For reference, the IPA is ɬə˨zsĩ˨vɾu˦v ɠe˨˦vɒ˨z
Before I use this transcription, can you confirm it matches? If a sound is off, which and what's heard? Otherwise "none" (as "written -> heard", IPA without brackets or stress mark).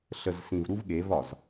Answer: none